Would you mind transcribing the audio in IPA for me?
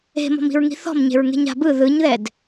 e̤ m ɔ̤ m i̤ ɹ ŋ i̤ θ ɔ̤ m ɲ e̤ ɹ ŋ e̤ ɲ a̤ b ɯ ð ɯ ɲ ð ɛ d

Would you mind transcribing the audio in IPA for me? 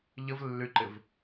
ʎ ə v lː y ǃ ɪ v

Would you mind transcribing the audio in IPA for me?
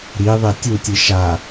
ɾ i ðˤ e tʲ u tʲ ɯ ʃ a

